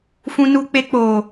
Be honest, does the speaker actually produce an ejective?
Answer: no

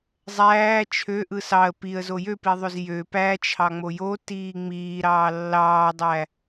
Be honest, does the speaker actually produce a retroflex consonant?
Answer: no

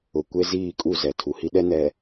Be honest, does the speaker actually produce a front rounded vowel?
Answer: no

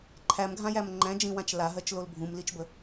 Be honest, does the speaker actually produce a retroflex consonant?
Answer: no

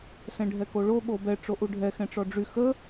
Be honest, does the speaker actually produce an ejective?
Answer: no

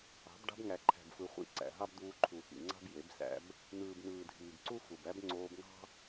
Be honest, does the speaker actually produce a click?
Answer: yes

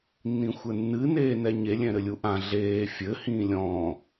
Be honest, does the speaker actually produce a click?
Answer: no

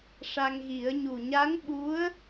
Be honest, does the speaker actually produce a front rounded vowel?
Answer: no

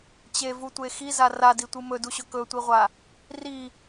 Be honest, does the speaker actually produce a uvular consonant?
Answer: yes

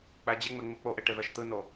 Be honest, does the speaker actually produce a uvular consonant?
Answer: no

